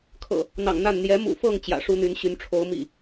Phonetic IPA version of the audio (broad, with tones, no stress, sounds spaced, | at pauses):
kʰ ɤ̰˨˩ | n̪ ɑ̰˨˩ ŋ n̪ a˥˨ n n̪ j ɛ˨˦ m ṵ˨˩ f ɤ˥˨ ŋ t͡ɕ j ä̰˨˩ ʂ u˦ n̪ y˨˦ n ɕ y˨˦ n ʈ͡ʂʰ o˨˦ ʊ̯ m ḭ˨˩